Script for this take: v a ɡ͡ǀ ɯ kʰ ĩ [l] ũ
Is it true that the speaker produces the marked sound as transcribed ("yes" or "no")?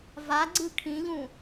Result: no